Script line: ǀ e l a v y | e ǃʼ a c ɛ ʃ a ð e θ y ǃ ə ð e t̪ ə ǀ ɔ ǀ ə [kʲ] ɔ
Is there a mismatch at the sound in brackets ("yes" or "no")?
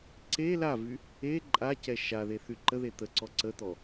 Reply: yes